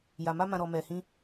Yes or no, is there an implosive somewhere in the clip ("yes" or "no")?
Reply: no